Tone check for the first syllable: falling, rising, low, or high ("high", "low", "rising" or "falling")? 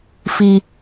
high